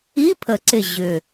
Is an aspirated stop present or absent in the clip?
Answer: present